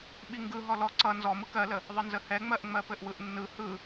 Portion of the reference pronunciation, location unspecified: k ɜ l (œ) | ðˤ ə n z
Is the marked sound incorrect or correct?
incorrect